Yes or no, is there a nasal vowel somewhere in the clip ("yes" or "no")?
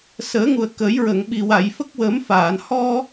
no